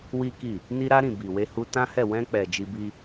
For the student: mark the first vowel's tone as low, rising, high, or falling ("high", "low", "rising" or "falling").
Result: high